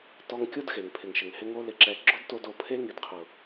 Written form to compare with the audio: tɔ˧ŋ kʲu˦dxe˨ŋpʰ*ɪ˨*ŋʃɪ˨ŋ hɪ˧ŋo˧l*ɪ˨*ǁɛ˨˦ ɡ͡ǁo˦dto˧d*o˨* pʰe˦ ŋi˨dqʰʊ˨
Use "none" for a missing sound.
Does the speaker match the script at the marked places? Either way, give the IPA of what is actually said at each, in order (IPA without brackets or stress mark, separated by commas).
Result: ɪ˨, ɪ˨, o˨